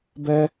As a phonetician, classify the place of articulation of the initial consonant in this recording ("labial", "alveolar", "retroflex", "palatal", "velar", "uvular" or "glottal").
labial